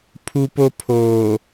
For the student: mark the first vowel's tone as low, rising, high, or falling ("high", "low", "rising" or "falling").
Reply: high